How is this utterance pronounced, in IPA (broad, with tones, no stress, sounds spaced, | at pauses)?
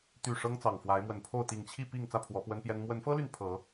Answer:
t̪ y˨˩ ʂ ɤ˦ ŋ t͡s ɑ˨˩ ŋ f w a˨˦ ɪ̯ m w ə˨˩ n pʰ o˥˨ ʊ̯ t̪ i˨˩ ŋ t͡ɕʰ i˥˨ p i˥˨ ŋ t͡s ä˥˨ pʰ w ɔ˨˦ p w ə˦ n p j ɛ˦ n m w ə˨˦ n f ɤ˦ l y˨ n pʰ ɤ˨˦